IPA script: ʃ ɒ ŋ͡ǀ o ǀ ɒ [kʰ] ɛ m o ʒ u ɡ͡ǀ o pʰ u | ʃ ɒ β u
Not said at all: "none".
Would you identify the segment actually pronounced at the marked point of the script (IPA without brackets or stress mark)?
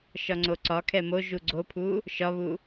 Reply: kʰ